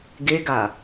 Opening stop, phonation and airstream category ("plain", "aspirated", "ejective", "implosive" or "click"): plain